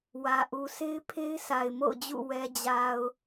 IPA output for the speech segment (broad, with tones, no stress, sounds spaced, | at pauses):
w ä˨ ʔ u˨ sʰ e˦ ɪ̯ pʰ e˦ ɪ̯ s a˨ ɪ̯ m o̰˦˨ ʊ̯ d͡ʑ ṵ˦˨ w ɛ˨ d͡ʑ a˨ ʊ̯